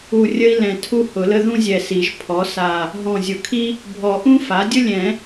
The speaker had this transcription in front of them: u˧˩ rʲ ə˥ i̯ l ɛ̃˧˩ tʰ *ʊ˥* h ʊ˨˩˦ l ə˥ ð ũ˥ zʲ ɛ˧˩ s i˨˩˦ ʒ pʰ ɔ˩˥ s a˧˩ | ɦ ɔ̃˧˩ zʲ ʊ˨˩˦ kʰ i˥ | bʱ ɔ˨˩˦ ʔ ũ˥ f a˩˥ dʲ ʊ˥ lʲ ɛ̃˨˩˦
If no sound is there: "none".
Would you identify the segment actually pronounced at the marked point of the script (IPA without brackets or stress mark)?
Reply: u˥